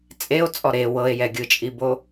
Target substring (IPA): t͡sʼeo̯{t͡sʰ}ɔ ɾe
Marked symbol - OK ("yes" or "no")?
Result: no